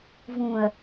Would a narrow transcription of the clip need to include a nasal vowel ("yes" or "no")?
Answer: yes